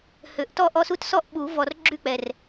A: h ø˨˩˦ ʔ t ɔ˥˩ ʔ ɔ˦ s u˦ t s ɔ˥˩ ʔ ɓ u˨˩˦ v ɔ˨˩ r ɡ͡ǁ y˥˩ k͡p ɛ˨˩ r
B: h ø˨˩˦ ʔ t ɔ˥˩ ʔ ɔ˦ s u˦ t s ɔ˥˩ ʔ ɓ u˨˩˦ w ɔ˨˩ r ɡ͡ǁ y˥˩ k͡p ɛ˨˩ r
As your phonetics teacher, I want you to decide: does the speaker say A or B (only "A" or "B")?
A